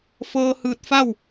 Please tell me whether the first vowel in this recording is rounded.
no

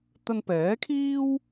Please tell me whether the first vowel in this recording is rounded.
no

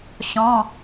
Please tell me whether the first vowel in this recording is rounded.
yes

